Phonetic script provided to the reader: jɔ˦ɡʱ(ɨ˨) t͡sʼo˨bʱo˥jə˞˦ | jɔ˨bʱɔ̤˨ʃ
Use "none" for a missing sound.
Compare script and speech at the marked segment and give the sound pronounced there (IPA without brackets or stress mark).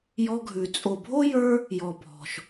ʉ˨